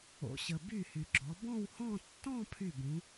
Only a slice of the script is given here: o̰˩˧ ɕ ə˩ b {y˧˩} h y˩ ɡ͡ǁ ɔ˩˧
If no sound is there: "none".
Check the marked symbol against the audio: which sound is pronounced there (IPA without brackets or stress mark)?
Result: y˧˩